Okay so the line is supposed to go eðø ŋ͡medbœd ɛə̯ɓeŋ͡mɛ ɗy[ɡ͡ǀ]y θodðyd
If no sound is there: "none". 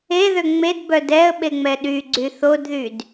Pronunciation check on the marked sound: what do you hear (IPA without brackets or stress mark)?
ɡ͡ǀ